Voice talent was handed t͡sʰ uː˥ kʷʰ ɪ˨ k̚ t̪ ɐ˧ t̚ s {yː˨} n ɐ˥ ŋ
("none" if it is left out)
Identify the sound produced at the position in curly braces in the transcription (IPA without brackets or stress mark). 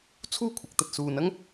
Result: uː˨